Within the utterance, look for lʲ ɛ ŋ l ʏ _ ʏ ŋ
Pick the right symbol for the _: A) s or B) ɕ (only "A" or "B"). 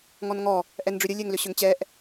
B